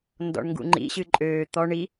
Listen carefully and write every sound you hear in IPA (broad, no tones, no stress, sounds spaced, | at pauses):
n d ɔ̰ ɳ ŋ ɡ ṵ ŋ͡ǃ ḭ ɕ ɨ ǃʼ øː t̪ ɔ ɳ i